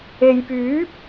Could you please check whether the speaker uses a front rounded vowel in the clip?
yes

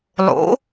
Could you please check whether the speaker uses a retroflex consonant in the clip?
no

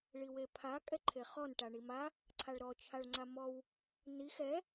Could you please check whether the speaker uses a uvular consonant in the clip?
yes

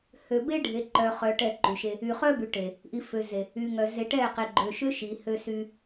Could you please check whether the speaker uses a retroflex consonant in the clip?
yes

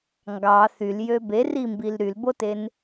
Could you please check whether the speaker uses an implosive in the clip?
no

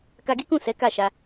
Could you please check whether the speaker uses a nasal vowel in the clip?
yes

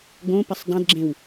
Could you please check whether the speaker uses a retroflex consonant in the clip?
no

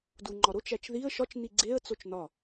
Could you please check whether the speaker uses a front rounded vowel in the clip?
no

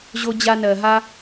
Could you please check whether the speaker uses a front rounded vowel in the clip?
no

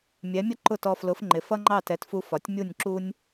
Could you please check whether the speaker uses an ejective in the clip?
no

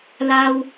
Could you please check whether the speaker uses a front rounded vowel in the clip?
no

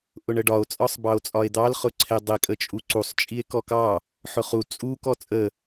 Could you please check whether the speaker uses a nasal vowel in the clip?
no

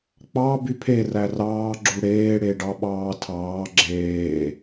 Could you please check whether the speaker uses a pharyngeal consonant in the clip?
no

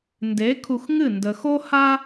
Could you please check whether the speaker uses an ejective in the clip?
no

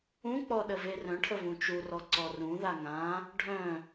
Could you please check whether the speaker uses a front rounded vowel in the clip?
yes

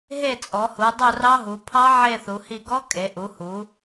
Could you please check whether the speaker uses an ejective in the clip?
yes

